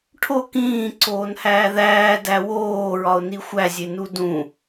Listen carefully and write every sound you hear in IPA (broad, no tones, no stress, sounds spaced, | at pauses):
ʈʰ o k ĩː ǀ oː n h æː ð æː d æ w oː ɹ ɒ ʊ̯ n i xʷ æ zʲ e n u d ũ